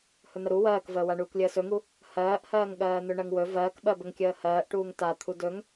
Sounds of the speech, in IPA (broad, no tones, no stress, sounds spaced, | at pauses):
h ɵ n̪ ə ɾ u w ɜː k v əː w a ɳ uː k lʲ əː s ɵ ŋ u | h ɜː ʔ h ɜː ŋ ɠ ɜː n̪ ɵ ɳ ɜ ŋ w ɵ v ɜː k ɓ ɜ b ə ŋ kʲ əː h ɜː ʔ ʈ uː ŋ t a t̪ʰ u d ɵ ŋ